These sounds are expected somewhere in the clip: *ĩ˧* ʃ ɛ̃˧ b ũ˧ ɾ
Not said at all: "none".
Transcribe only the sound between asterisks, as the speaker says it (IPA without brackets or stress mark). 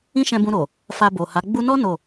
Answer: ĩ˦